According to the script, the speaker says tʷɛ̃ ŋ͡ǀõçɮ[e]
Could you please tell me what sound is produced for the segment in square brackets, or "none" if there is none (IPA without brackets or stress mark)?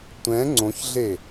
e